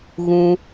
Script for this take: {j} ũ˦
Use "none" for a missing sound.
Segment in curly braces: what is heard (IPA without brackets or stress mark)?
ɣ